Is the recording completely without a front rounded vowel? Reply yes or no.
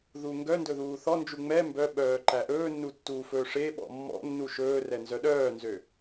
no